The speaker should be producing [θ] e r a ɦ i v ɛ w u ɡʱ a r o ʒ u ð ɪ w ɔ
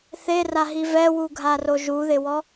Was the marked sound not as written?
no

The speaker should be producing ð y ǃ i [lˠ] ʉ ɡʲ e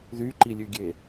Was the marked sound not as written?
yes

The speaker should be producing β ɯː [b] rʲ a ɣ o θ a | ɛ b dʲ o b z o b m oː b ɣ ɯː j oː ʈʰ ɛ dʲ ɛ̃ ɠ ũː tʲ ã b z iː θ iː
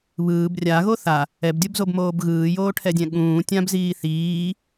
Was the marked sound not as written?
no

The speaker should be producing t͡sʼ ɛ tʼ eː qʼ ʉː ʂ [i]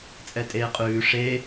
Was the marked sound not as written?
yes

